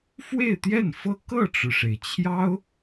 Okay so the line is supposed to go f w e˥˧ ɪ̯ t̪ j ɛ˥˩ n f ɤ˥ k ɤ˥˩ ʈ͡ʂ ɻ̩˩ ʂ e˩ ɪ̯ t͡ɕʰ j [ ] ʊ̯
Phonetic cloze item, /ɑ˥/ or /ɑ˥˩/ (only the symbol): ɑ˥